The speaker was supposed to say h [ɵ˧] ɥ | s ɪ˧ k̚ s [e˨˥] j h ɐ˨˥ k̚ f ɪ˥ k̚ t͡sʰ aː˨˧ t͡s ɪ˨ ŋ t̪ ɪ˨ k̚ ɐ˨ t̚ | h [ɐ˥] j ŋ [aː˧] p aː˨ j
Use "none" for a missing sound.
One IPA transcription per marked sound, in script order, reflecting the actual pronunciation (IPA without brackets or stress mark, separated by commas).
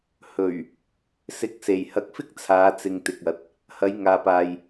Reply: ɵ˨˩, e˨˩, ɐ˨˧, aː˨